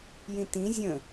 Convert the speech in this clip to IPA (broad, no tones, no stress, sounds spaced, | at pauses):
j ĩ t ĩ zʲ ə̃